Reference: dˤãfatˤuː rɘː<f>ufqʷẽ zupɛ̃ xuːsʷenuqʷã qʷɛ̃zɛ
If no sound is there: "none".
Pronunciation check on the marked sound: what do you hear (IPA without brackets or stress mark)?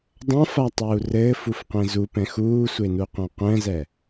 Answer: f